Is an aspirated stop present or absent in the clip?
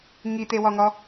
absent